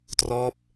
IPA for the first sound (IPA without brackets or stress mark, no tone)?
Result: t